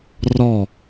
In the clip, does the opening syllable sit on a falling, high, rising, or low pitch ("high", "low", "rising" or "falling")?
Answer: falling